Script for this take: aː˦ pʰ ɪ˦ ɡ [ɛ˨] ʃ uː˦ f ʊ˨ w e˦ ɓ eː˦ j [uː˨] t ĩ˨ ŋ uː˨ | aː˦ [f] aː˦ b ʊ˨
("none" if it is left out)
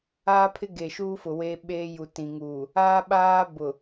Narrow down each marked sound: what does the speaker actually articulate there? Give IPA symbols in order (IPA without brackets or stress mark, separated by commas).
e˨, u˨, ɓ